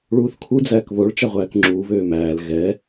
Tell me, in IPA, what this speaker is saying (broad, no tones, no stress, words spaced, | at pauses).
ɭuːθkʰu d͡zæːkβoɭ t͡ʃaʁʷæːkŋ͡ǁuː βøːmæːl ɣɛ